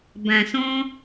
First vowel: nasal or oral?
nasal